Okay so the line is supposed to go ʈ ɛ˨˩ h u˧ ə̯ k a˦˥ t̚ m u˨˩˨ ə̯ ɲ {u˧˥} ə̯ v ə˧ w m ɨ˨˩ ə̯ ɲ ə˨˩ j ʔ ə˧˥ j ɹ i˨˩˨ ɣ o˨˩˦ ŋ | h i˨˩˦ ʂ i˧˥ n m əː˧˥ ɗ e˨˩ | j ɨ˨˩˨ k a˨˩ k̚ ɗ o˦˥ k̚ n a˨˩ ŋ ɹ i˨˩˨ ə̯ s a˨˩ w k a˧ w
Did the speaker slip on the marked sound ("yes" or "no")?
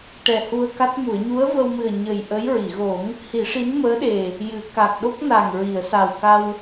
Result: no